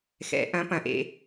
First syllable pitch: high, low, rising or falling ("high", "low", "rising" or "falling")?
rising